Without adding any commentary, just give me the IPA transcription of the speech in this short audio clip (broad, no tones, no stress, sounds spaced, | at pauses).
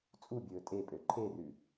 t͡sʼ u bʲ ɵː tʼ e pʼ ø ǃʰ e r ʉ